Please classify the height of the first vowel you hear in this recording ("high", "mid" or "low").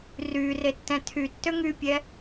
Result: high